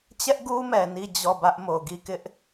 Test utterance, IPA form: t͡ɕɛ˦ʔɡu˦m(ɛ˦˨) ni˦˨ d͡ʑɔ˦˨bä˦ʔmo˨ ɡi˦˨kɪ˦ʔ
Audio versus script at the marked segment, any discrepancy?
yes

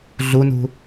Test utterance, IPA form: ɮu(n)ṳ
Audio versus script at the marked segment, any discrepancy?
no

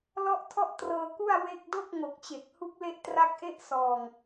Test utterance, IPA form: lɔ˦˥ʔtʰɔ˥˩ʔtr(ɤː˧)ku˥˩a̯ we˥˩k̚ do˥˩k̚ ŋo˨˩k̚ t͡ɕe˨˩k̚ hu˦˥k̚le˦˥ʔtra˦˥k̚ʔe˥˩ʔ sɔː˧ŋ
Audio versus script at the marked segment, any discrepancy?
no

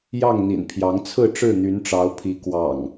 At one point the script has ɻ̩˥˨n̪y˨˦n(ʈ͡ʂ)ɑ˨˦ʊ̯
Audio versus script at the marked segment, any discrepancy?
no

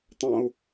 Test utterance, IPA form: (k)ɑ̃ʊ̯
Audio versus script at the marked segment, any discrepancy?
yes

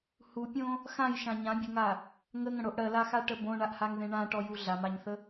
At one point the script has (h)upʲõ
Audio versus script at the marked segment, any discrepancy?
no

